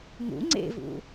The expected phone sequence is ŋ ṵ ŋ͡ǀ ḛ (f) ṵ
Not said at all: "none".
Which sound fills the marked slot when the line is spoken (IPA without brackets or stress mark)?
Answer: v